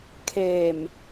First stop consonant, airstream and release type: aspirated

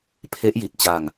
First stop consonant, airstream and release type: aspirated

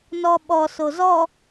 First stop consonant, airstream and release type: implosive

